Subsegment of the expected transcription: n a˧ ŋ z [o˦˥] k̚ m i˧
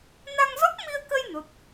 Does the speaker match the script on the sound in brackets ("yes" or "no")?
no